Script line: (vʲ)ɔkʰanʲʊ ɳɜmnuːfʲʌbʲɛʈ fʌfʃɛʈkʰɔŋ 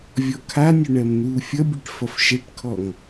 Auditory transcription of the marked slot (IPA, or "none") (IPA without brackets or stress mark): vʲ